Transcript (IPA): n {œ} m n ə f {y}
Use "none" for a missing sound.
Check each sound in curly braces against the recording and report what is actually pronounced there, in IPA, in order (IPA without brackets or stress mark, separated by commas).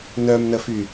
œ, y